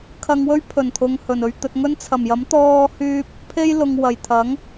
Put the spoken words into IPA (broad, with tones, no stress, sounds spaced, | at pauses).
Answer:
kʰ ɐ˧ ŋ w ɵ˥ ɥ pʰ ɵ˨˩ n t̪ʰ ʊ˨ ŋ h ɵ˨˩ n ɵ˧ ɥ t̪ ɵ˧ t̚ ŋ ɵ˥ n t͡sʰ ɐ˨˩ m j ɐ˨˥ m t̪ ɔː˧ h yː˧ p̚ | pʰ e˥ j l ʊ˨ ŋ w ɐ˨˩ j t̪ʰ ɐ˨˥ ŋ